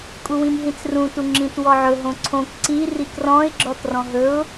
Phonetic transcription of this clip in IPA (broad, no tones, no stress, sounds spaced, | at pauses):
kʼ u w ĩ m ɦ ĩ t͡s r ũ t u ŋ͡ǁ ĩ t w ɔ ʕ ɵ ɦ õ ǀʰ õ k ǀ i r i k r ɔ̃ ɪ̯ ɡ͡ǁ ɔ t r ɔ̃ ɦ ɵ ʊ̯